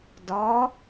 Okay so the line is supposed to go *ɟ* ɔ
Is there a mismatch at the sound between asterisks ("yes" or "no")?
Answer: yes